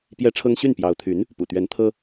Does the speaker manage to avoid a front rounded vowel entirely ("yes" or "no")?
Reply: no